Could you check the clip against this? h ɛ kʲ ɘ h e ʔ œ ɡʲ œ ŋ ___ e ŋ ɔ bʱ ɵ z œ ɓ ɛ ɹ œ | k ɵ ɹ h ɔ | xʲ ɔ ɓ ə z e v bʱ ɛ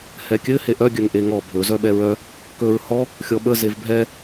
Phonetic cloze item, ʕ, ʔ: ʔ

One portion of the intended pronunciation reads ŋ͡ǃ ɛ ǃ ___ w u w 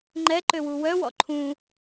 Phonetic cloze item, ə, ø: ø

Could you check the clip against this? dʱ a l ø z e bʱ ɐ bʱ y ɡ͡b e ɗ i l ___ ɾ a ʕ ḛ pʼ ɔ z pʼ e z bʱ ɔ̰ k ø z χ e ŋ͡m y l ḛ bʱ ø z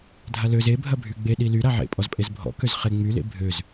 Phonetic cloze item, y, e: y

